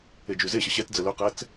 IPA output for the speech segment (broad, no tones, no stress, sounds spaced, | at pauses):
e d͡ʒ y z e ɕ ə ɕ ɛ t d͡z ə l ɵ q ɛ t͡s